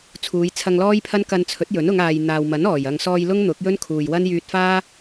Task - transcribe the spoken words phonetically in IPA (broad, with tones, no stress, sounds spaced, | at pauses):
t͡sʰ uː˨˧ j t͡sʰ ɐ˧ ŋ l ɔː˥ j pʰ ɐ˥ n k ɐ˧ n t͡sʰ ɵ˨˥ t̚ j ɵ˨˥ n ʊ˨˧ ŋ aː˨ j n̪ aː˨ w m ɐ˨˥ n ɔː˨˩ j ɐ˨ ŋ s ɔː˧ j l ʊ˥ ŋ n̪ ʊ˨˥ k̚ j ɵ˥ n kʰ uː˨ j w ɐ˥ n j yː˧ t̚ f aː˥